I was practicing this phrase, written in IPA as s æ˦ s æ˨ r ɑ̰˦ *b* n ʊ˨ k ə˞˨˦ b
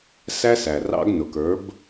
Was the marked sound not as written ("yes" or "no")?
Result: yes